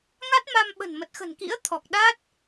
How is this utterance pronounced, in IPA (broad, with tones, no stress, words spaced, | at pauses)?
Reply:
ŋa˦˥t̚ma˧m ɓə̤˨˩nmə˨˩t̚xə̤˨˩n kḭ˧˥ə̯ t̪ʰɔ˨˩k̚ ɗa˦˥t̚